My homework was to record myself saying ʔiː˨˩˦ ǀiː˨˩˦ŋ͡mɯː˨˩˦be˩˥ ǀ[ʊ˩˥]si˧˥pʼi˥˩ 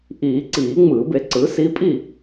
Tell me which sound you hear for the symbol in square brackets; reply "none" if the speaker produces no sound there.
ɯ˩˥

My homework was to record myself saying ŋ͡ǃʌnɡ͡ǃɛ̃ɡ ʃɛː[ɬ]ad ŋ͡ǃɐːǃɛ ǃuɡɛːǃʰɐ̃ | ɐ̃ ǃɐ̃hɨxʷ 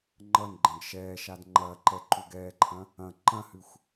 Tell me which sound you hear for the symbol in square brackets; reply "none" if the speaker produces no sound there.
ʃ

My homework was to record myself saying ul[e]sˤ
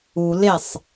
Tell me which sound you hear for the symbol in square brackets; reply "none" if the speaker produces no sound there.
e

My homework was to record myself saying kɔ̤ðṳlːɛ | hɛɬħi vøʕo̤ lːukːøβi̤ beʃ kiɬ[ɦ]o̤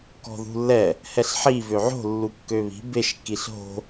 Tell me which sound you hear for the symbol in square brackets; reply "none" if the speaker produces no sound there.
ɦ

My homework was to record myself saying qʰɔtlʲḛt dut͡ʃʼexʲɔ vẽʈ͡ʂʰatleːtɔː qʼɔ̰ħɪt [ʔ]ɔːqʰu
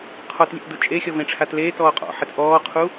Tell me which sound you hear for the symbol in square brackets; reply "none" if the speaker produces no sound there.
ʔ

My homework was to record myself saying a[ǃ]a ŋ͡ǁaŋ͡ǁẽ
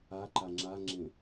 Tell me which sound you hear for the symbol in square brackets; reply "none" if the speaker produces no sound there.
ǃ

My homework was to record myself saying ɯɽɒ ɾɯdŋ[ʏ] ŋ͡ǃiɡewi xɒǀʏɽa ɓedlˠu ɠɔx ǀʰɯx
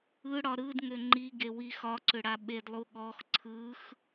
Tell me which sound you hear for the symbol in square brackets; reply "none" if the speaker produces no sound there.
ʏ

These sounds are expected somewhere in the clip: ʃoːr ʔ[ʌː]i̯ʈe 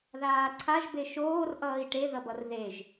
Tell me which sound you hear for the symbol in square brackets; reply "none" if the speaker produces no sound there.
ʌː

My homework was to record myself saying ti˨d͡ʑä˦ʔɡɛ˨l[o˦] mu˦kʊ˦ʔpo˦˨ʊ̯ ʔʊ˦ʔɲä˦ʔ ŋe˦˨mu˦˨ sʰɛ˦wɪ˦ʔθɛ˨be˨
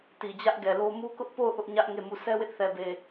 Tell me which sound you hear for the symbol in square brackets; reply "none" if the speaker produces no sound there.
o˦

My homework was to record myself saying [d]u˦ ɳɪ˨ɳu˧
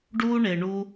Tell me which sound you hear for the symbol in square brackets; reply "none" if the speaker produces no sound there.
ɖ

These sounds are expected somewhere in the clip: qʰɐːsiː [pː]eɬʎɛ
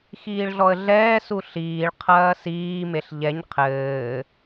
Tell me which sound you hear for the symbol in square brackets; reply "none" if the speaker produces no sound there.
m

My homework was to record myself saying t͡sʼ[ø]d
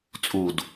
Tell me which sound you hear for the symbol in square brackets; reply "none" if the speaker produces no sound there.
u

